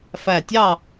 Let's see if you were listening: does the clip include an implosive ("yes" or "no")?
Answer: no